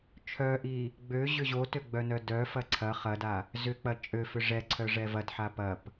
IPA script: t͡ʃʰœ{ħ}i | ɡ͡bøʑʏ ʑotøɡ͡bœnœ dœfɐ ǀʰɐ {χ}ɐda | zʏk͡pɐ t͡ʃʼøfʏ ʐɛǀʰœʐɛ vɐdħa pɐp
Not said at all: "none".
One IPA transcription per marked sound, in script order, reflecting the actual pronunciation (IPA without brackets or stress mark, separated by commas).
ʔ, χ